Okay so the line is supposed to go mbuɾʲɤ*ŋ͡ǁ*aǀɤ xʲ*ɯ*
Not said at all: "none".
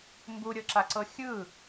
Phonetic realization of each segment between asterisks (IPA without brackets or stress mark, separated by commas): ǁ, ɯ